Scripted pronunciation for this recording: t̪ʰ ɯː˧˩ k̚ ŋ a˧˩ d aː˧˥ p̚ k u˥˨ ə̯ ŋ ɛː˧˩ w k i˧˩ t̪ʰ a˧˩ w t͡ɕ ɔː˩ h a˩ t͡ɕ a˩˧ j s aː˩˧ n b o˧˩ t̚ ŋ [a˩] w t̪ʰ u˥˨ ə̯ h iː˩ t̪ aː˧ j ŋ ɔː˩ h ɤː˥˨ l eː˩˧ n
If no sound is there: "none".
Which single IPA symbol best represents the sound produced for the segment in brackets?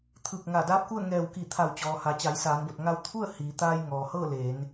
a˧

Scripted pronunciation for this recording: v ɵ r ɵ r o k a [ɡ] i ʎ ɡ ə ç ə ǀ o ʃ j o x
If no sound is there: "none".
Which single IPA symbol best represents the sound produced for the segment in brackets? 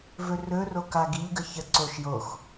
ɡ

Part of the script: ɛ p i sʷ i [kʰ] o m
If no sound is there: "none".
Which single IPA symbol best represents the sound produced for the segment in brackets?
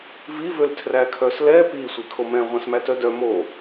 kʰ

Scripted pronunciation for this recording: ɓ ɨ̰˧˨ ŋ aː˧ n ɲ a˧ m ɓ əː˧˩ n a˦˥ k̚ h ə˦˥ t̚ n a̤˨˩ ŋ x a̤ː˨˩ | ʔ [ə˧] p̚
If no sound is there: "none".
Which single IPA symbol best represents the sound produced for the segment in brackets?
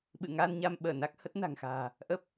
ə˦˥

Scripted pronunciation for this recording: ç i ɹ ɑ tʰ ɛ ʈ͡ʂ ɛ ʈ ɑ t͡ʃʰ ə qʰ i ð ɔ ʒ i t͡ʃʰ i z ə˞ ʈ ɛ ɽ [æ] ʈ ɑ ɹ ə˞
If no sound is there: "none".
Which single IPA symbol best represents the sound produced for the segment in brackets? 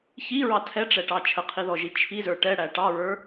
æ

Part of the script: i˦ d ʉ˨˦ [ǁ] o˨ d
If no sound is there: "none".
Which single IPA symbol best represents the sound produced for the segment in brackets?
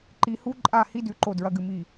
ǃ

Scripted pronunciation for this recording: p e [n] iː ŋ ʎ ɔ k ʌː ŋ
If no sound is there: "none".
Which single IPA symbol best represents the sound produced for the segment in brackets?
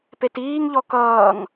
t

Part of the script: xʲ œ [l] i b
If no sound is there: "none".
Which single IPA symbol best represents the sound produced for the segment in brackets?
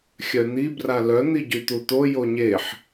n̪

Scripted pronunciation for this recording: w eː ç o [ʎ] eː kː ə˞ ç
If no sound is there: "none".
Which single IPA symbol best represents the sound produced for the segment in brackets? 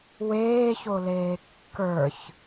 l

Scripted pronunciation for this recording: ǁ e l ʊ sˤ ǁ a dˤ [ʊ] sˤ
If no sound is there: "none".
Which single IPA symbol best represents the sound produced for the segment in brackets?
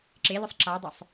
ʊ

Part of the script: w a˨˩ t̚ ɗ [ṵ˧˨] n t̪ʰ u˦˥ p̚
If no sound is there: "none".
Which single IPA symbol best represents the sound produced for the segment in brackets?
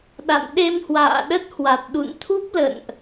ṵ˧˨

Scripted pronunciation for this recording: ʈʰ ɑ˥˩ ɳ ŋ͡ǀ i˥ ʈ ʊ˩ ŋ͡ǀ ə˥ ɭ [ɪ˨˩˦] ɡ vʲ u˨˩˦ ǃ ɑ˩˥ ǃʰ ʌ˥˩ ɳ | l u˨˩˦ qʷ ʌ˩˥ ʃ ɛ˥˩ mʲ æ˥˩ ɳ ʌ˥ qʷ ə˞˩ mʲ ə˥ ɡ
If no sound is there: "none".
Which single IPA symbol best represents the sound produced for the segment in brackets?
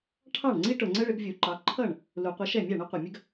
ɪ˨˩˦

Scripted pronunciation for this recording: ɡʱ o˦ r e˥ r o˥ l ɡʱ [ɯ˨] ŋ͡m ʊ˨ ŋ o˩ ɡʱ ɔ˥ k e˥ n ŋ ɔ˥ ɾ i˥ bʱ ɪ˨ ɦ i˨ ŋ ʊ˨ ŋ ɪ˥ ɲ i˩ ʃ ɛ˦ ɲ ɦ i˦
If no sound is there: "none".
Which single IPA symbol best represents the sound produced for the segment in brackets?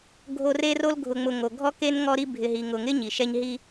ʊ˨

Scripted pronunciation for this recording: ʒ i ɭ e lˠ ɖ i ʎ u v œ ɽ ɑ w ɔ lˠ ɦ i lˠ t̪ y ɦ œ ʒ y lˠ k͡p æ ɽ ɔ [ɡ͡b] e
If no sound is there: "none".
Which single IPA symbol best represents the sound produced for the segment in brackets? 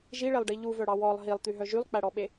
ɓ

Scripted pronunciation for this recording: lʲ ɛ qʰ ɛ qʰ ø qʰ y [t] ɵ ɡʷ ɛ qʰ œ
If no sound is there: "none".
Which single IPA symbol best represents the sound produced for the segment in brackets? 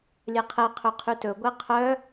t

